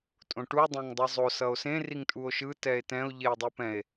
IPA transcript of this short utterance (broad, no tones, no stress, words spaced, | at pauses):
tʼõʈu dˤɛ̃ŋdˤɯzˤo sʌo̯sẽ riŋtʼuo̯ʃɯ tɛe̯tɛ̃o̯ ʎeo̯dˤupɛ̃e̯